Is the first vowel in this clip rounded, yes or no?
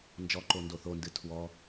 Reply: yes